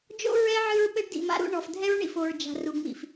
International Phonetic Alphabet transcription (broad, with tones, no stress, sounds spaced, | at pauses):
d͡ʒ o̰˦ ɹ ɛ˦ ʕ ɨ˦ ɹ ɓ ɘ˦ ɖ d ḭ˨ m a̰˦ ɾ ṵ˦ ɳ ɔ˨ f dʱ ɛ˦ ɹ ɳ ḭ˨ f o˨ ɹ d͡ʒ a̤˨ r u˨ ŋ͡m ḭ˨ f